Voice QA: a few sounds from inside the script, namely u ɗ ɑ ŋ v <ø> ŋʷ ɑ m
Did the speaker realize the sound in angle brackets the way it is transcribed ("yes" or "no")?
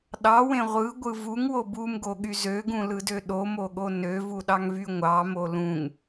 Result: no